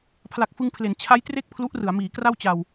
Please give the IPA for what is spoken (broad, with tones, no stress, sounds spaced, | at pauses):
pʰ l a˨˩ k̚ f ɯ˧ ŋ pʰ l e˩˦ n t͡ɕʰ a˦˥ j t r e˥˩ k̚ pʰ l u˦˥ ʔ r ɯ˩˦ a̯ m iː˩˦ k r a˥˩ w t͡ɕ a˧ w